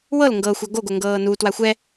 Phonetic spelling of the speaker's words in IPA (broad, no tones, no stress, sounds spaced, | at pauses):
w ɤ l ŋ ɡ ɤː xʷ a ɡ o ɡ o ŋ ɡ ɤː n u t w a xʷ ɛ